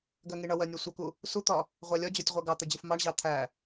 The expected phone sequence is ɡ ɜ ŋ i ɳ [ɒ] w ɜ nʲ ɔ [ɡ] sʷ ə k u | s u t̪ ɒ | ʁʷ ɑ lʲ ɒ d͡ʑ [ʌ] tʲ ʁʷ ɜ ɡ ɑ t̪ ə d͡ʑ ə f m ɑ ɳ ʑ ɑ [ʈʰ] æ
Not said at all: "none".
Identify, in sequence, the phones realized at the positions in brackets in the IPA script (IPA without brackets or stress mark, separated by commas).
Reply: ʌ, none, ɔ, t̪ʰ